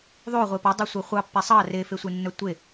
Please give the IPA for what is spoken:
ðˤo ʁʷepɑ dˤœsʷœχʷɑpːɛ sˤɑ refesʷenːœ tʷe

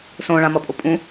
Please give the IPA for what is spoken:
sõɭãmʌ pʼopʼũ

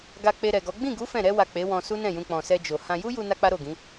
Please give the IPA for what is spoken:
ɡa˧k͡pe˧ɾɛ˨ɡɔ˨˦ ɡ͡bĩ˦˨ɡu˨˦ fɛ̃˦˨ ɾɛ˧wa˨ k͡pe˨˦wɔ̃˧ su˦nɛ̃˦˨jũ˧ k͡pɔ̃˨sɛ˧d͡ʒo˨ hã˧ ju˦ju˧ na˦k͡pa˦ɾo˦˨ɡĩ˨˦

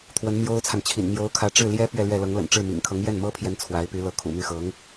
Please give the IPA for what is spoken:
t̪ʰwə˧˥nmjo˥ʊ̯t͡sʰa˨nt͡ɕʰḭ˨˩n mjo˧˥ʊ̯kʰä˧˥ʈ͡ʂɻ̩˥˩ ljɛ˥ pɥɛ˥˧lɥɛ˥˩lɤ˧˥ŋ lə̰˨˩n ʈ͡ʂɻ̩˥˩ mḭ˨˩ŋkʰɤ˧˥ŋ jɛ˥˩nmɤ˥pʰjɛ˧˥n t͡sʰwa˧˥ɪ̯py˧˥ lɤ˧˥kʰṵ˨˩my˥˩ xɤ˧˥ŋ

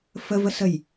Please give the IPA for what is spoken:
fəvəsəj

